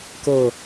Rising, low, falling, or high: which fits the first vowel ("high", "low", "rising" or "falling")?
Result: low